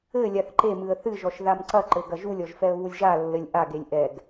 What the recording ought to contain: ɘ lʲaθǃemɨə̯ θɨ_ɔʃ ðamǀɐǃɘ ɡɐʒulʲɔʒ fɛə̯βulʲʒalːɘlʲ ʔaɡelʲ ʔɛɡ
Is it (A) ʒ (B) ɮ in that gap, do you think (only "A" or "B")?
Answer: A